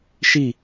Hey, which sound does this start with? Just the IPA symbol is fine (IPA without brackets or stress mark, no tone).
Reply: ʃ